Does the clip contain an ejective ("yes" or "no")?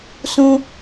no